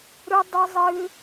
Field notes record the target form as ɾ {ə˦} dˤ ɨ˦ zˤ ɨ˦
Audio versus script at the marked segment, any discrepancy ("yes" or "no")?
yes